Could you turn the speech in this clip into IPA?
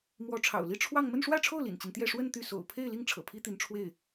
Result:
mwɔ˧˥ʈ͡ʂʰɑ̰˨˩ʊ̯li˥˧ ʈ͡ʂʰwɑ˥˧ŋ mə˥˧nʂwä˥˧ʈ͡ʂʰo˥˩ʊ̯ lḭ˨˩nt͡ɕi˦nt̪jɛ˥˧ ʂwə˥˧n t̪y˥˩ so̰˨˩ʊ̯pʰe˥˧ɪ̯li˥˩ŋ ʈ͡ʂʰɤ̰˨˩pʰi˥t̪i˧˥n ʈ͡ʂʰwe˥˩ɪ̯

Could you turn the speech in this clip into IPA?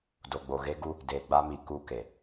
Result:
do˨ɡ͡bo˨ɣe˦ɡu˦ | deː˨ɡ͡ba˦mi˨ ku˦ ke˨

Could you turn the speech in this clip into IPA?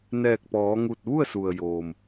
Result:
nɛː˧˩k̚pɔː˩˧ŋu˧˩t̚ ʋu˥˨ə̯su˩ə̯joː˩m

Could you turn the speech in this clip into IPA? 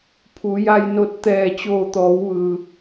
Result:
pʰu˩˧ja˧jno˧t̚ t̪ɛː˧˩t͡ɕoː˧˩t̪ɔː˩˧wʋɯː˩

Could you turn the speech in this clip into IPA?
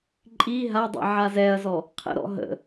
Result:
ǃʼi ɦadˤḭ ʕazɛɐ̯zɔ | qʰə̰ɾɔ̰ ɦə̰

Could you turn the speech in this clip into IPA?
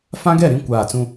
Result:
fã˦ɡɛ˦˨ ɾĩ˦ kʷaː˦˨ t͡sũ˦

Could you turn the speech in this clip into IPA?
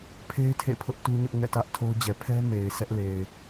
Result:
pʰe˦ɪ̯ tʰḛ˦˨pʰʊ˦ʔ tu˦ɲʊ˦ʔ ŋɛ̰˦˨tä˦ʔtʰo˦ʊ̯d͡ʑɛ˨ pʰɛ˦ me˨ɪ̯sɛ˦ʔle˨ɪ̯

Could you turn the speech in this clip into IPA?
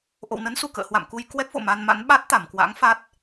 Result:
ʔo̰˧˨wnə˨˦nsu˧˩ kə̰ː˧˨hwa̰˧˨mku˧j kwɛ˦˥k̚vo̰˧˨ ma˧nma̰˧˥n ɓa˦˥t̚t̪a˧˩mkwa̰˧˥ŋ fa˦˥t̚

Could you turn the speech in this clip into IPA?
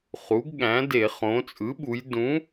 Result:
χu˩˥ɡɠæ̃˩˥de˧˩˧ χõ˩˧t͡sʼɯ˩˥ɓu˩˧j dũ˩˥

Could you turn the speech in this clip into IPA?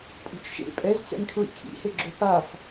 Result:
pʼo̤t͡ʃʃḛ pʼɛzt͡sɛ̰ŋkʰɹḭ kʰḭheɡ͡ǁo paf

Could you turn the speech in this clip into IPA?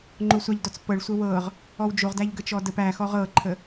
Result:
ŋ͡ǃosʷaʎdɔt͡spɤɭ sʷəwɤʁ | ɔwd͡ʒoʁ dæʎɡət͡ʃɔdəp æxɔʁ ɤǃʰə

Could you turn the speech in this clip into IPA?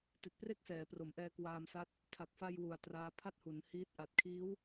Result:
ti˨˩t̚pre˥˩k̚sɛː˩˦pro˩˦m ʔɛː˧kwaː˧msa˦˥t̚ | tʰa˨˩k̚fa˧j wu˨˩a̯traː˦˥ pʰa˥˩t̚hu˩˦nhiː˦˥t̚ ʔa˨˩t̚kʰiː˦˥w

